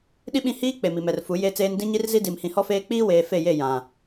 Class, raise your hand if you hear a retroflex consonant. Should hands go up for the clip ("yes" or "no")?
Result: no